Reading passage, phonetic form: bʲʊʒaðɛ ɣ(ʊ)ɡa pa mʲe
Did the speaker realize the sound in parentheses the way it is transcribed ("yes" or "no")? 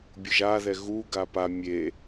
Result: no